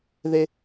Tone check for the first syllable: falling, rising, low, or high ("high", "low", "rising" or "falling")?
high